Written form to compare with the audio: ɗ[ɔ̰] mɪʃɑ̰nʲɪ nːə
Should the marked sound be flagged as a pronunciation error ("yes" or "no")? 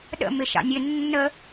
yes